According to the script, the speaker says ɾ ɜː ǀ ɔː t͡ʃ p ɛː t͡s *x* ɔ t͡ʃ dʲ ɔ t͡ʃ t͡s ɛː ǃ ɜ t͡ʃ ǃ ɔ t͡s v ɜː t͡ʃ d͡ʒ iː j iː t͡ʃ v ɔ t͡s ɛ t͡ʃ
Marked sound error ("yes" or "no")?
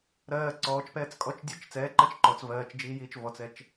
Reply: yes